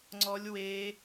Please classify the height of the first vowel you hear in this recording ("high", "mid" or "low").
mid